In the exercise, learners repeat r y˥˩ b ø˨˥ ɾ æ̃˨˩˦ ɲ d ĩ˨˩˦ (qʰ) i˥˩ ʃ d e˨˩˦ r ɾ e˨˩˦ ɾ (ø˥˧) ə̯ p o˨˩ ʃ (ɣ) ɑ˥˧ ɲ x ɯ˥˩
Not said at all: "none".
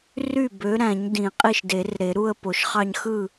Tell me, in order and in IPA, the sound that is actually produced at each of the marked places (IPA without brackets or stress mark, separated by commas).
qʼ, u˥˧, χ